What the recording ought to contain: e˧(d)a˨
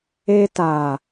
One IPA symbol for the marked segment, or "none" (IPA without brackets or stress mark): t